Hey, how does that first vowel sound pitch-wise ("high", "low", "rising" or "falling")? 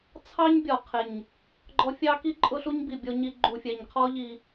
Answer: high